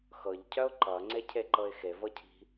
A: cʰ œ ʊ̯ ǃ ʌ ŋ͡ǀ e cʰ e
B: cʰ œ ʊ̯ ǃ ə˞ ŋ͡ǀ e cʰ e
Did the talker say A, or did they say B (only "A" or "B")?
A